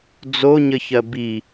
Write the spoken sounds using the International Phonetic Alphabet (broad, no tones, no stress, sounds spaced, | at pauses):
d͡z o ɲ ə ç ɜ b i